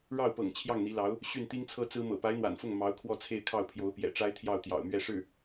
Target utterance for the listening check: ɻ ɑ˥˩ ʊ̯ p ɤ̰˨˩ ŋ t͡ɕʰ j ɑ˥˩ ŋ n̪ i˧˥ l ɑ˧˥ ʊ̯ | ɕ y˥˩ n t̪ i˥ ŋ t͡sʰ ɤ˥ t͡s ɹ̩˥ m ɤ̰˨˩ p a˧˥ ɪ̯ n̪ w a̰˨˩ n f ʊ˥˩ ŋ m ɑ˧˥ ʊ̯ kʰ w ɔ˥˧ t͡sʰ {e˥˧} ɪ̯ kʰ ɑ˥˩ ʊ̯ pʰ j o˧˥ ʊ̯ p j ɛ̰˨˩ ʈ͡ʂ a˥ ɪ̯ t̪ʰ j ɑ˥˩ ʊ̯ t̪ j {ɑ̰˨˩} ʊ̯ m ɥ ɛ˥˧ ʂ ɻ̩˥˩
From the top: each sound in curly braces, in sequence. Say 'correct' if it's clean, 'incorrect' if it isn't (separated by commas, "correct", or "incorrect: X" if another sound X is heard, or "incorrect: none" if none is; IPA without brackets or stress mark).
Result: correct, correct